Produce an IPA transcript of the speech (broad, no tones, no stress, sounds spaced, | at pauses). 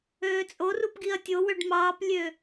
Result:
øː t͡sʼ o r u p ɡ i ɐ̯ tʲ o w ø ɖ m ɑː p lʲ øː